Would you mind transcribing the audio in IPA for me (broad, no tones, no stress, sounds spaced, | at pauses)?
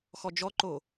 x ɔ d͡ʒ ɔ ǃ o